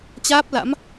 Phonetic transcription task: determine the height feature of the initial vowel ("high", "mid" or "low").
low